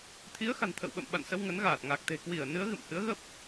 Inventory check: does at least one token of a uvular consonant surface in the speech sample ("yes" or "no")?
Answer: no